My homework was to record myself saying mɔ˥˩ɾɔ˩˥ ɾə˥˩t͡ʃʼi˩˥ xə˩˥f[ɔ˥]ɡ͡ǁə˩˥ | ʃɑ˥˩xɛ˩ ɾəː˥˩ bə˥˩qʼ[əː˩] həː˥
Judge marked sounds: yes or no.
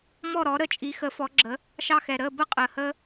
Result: no, yes

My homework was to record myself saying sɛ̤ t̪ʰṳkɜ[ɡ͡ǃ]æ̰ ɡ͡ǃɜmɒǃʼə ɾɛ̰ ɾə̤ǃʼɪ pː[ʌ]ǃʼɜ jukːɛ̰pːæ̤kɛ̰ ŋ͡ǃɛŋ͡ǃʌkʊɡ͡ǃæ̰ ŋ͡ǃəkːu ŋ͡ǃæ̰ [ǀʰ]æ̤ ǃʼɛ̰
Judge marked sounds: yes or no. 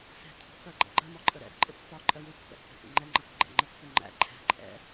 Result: yes, no, no

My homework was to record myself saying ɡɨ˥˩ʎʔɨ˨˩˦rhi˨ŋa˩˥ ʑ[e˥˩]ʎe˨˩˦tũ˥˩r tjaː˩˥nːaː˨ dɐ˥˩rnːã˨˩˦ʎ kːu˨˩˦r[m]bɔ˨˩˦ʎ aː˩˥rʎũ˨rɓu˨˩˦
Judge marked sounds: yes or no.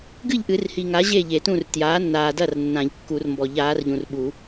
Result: yes, yes

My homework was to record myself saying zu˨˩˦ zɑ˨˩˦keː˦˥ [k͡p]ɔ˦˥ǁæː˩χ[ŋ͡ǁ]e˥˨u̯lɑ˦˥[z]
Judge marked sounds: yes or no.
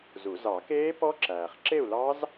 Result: no, no, yes

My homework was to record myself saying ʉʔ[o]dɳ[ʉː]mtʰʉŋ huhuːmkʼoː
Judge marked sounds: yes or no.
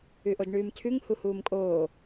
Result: yes, yes

